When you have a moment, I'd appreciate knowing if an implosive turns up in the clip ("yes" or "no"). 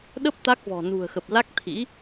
yes